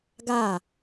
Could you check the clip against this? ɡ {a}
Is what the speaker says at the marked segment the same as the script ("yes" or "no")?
yes